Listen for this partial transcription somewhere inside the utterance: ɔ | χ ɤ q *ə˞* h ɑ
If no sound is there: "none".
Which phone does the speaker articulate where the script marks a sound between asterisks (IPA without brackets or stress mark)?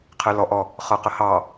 ə